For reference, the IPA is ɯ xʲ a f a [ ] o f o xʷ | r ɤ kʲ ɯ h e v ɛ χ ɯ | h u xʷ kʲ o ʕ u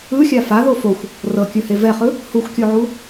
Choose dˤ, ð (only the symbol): ð